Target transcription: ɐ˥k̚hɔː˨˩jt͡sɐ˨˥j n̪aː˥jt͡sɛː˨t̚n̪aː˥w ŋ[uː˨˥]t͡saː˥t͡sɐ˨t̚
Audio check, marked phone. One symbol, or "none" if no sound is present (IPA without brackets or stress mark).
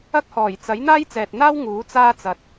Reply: uː˨˥